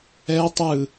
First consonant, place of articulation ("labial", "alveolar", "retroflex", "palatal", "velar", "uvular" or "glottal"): alveolar